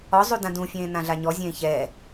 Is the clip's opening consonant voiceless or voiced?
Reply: voiced